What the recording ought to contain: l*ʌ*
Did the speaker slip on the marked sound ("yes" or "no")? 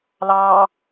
yes